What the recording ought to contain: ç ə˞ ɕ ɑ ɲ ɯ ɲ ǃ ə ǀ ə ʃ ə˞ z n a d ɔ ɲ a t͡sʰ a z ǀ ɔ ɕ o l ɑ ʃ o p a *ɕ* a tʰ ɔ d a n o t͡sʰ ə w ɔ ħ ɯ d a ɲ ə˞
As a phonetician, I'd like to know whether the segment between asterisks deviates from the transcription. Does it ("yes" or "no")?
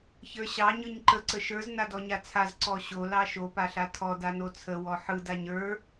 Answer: yes